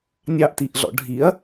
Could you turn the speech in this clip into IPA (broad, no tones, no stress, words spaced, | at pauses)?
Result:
nʲɑʔtiʔɮɔ̰ ɖʱiɐ̯